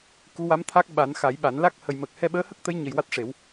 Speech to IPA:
k u˧˥ w a˧˥ m t̪ʰ a˦˥ k̚ ɓ a˨˩˦ n x a˨˩˦ j ɓ a˨˩˦ n l a˦˥ k̚ h ə˨˩ j m əː˨˩ k̚ h ɛ˧ ɓ əː˧˥ h ə˦˥ k̚ t̪ ə˧˥ j ɲ ə˨˩ j w a˦˥ t̚ ʂ e˨˩˦ w

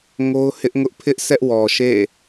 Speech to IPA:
ŋ o˦ ʊ̯ h ɪ˦ ʔ ŋ ʊ˦ ʔ pʰ ɪ˦ ʔ sʰ ɛ˦ ʔ w ɔ˨ ʃ ḛ˦˨

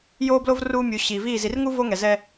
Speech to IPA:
j oː˦ b l o˦ v r uː˦ mʲ u˨ ɕ iː˨ v iː˦˨ z i˨ r ŋ u˦ v o˦ ŋ ɛ˨ z ɛ˦

